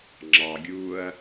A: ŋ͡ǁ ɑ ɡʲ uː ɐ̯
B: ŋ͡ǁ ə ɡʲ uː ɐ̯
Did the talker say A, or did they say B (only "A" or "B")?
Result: A